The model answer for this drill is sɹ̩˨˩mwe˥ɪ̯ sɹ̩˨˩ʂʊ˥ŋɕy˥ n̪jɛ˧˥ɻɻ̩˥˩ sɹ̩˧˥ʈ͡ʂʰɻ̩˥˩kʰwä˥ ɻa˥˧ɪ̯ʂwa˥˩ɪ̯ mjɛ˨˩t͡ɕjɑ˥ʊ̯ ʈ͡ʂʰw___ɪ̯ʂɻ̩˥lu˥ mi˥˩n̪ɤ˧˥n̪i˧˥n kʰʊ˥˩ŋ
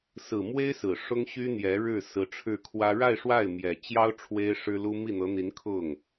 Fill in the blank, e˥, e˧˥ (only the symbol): e˥